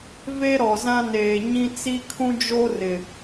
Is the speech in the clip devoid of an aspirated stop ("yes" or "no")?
no